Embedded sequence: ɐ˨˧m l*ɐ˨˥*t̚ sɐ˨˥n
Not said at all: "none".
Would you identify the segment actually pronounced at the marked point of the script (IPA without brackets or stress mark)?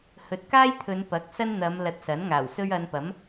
ɐ˨